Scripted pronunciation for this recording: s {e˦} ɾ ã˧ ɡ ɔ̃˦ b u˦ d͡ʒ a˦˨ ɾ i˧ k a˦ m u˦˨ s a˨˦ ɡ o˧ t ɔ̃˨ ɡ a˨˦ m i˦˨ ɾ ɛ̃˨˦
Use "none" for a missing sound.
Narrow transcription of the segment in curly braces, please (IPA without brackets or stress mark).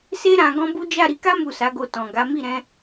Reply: e˦